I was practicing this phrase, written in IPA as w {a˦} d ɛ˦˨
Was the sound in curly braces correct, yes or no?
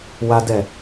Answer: yes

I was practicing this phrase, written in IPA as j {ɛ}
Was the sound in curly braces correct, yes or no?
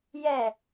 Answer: yes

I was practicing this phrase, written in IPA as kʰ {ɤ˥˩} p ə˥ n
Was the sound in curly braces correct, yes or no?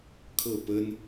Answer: yes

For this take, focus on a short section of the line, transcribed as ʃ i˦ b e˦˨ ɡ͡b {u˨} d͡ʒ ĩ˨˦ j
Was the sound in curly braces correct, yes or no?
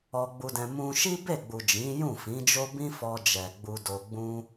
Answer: yes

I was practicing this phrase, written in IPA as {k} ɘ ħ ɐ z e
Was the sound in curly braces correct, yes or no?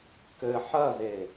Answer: yes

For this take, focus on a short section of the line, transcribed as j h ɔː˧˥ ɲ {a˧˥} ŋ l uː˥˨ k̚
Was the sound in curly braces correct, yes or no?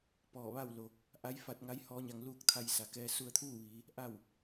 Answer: no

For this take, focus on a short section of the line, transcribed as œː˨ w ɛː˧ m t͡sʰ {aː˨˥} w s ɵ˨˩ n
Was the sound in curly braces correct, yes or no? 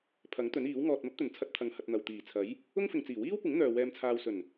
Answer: no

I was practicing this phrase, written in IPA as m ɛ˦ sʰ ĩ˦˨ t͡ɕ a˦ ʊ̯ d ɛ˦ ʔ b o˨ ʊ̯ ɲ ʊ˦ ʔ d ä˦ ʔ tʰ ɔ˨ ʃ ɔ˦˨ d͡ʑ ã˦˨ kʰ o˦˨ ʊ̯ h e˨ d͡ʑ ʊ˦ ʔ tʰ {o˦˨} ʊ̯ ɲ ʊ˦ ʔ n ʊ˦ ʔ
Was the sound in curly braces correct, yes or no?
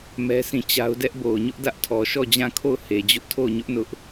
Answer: yes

